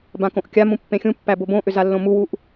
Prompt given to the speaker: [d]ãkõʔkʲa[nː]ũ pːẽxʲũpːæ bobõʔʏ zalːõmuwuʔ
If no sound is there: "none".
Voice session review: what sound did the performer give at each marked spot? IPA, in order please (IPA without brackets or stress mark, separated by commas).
b, m